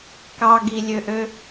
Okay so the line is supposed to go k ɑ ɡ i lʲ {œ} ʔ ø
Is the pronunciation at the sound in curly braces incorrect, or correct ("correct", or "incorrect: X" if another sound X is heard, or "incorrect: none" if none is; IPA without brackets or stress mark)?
incorrect: ø